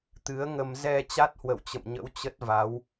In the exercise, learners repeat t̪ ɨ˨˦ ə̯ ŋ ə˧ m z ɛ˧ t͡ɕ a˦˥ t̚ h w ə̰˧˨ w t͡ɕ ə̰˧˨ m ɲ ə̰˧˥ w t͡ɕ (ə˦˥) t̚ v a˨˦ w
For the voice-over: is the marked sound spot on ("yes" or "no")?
yes